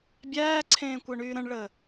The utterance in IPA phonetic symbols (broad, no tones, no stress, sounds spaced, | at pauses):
bʲ æː ǀʰ ẽː kʷ əː ɳ yː ɾ ə̃ ɳ ɭ əː